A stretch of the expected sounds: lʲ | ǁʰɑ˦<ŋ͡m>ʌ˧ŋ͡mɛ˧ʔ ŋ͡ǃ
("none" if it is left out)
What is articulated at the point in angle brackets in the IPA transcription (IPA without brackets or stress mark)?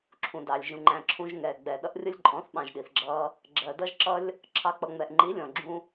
k͡p